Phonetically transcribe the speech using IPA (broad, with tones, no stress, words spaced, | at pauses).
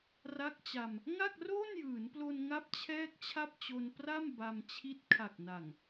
ra˦˥k̚t͡ɕa˧m | ŋa˥˩k̚roː˥˩njɯː˩˦nplo˧n ŋa˥˩p̚t͡ɕʰɛː˥˩k̚t͡ɕʰa˥˩p̚t͡ɕo˧n pra˥˩m ba˧m t͡ɕʰi˦˥t̚ kʰa˨˩k̚na˨˩ŋ